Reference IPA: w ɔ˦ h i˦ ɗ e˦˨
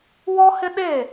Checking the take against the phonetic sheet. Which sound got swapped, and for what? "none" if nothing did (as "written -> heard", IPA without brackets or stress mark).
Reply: i˦ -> ɪ˦